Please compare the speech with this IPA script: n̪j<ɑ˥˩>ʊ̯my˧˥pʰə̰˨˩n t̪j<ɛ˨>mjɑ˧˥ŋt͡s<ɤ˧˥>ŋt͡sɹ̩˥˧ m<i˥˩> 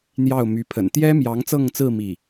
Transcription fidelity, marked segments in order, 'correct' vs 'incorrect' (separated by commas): correct, incorrect, incorrect, correct